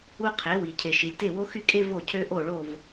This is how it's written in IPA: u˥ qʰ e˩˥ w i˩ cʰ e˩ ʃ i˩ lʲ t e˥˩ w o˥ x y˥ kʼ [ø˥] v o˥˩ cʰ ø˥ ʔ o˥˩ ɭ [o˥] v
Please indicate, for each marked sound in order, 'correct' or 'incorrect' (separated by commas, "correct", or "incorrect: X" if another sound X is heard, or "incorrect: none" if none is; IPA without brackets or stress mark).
incorrect: e˥, incorrect: o˥˩